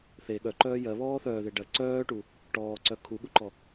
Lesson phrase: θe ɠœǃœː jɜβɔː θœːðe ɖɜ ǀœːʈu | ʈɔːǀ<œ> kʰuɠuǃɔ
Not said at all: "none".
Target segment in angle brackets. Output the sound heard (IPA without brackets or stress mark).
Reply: œ